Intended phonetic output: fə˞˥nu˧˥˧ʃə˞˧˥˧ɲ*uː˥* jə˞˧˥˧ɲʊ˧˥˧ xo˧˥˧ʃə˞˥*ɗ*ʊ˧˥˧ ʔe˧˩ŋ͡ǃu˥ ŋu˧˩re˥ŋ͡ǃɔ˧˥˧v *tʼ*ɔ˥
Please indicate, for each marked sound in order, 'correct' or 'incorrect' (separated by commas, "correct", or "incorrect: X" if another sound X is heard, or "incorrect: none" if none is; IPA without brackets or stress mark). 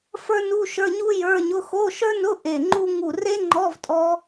incorrect: u˥, incorrect: n, correct